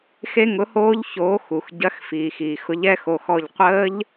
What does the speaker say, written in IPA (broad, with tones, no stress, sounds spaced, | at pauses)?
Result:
x e˦˥ ŋ ʊ˨˥ h oː˦˥ ʎ ç oː˨˥ x u˩ x ɟ ɐ˨˥ x f iː˩ x iː˩ x ʊ˨˥ ʎ ɛ˦˥ x o˩˧˩ x ɔ˧˩ ʎ qʷ əː˦˥ ʎ